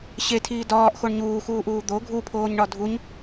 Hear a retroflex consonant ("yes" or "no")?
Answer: yes